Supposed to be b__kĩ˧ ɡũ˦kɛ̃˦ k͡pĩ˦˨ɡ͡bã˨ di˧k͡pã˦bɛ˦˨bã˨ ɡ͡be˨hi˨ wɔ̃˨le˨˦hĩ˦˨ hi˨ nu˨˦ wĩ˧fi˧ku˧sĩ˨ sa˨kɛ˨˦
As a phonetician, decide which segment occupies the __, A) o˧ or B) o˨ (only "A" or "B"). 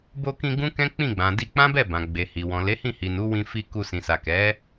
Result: A